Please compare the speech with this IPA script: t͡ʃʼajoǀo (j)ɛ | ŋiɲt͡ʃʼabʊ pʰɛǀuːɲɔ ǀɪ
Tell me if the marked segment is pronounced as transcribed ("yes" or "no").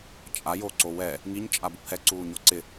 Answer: no